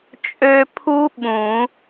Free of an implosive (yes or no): no